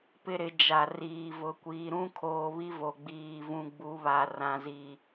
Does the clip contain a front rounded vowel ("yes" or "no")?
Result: no